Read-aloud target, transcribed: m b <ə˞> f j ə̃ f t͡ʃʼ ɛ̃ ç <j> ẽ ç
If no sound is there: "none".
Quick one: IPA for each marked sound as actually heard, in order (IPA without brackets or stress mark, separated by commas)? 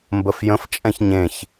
ə, ɲ